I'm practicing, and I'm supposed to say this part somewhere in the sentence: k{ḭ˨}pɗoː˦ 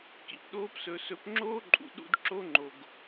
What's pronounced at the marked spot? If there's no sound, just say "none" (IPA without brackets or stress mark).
ḭ˨